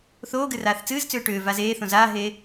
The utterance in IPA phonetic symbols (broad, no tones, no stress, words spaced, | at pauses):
θoːɡɨraːθ t͡sɨːzt͡sʏː ʈʏːvaːz eːθõ zaːɦeː